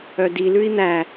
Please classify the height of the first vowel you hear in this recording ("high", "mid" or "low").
mid